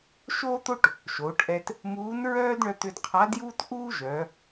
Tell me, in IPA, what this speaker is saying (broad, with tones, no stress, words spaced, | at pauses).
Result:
ʃoː˥t̪o˥ʈ | ʃoː˩˧ʈʔɛ˧t | muː˧˥nɹœː˥dɳœ˧ t̪ʏ˧d qʰa˧˥djuː˥t ʔuː˥ʒœ˩˧